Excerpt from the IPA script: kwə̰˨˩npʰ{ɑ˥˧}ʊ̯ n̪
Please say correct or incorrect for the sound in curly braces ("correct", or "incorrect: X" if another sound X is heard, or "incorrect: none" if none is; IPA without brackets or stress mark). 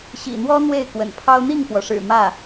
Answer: incorrect: ɑ˥